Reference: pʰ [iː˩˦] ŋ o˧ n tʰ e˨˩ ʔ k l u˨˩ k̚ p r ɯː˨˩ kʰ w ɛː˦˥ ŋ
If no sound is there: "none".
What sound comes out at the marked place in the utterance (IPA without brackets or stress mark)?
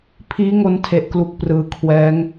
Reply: iː˦˥